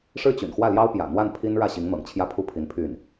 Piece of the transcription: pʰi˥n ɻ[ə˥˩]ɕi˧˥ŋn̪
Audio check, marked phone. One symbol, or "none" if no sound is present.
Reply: ä˥˩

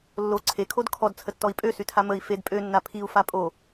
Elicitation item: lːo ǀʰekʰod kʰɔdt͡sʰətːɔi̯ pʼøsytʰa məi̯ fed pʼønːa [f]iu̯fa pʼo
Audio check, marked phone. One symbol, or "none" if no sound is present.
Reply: pʰ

